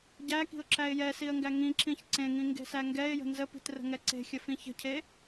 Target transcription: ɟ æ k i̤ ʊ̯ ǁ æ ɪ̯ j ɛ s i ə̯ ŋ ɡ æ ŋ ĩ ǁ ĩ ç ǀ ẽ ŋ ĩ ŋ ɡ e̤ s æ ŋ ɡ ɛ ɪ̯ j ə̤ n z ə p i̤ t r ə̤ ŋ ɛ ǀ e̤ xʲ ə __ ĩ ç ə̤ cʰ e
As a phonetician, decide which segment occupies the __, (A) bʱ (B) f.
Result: B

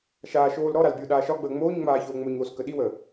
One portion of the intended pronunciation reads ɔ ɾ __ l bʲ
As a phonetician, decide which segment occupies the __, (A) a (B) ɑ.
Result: A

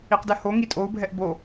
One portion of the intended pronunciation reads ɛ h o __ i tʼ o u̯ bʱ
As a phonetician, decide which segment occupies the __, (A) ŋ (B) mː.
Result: A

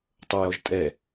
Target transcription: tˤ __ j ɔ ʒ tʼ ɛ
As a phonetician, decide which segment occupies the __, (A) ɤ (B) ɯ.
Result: A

